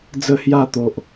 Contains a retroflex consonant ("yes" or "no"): no